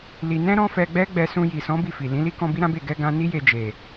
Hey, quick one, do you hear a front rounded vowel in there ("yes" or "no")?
no